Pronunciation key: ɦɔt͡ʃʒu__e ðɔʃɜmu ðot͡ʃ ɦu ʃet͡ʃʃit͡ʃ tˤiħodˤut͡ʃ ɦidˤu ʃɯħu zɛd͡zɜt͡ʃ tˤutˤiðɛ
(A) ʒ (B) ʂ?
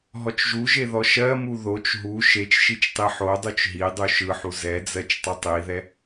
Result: A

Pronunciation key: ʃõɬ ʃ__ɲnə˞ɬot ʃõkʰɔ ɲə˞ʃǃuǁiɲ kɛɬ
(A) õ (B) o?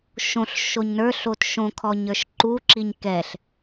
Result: B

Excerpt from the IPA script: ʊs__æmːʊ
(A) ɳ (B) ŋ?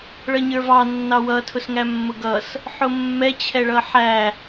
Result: B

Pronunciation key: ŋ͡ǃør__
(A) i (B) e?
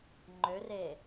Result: B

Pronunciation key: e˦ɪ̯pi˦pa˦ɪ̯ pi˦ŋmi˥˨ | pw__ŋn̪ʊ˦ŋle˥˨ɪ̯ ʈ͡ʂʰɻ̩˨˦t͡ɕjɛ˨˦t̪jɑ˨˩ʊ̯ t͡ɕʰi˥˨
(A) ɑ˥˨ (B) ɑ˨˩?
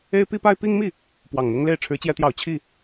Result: B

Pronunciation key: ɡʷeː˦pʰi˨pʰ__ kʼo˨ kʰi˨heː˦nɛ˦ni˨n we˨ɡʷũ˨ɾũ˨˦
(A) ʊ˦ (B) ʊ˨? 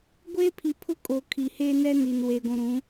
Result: A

